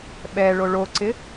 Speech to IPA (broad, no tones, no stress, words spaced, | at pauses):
ɓɛ ɭoɭoǀɪ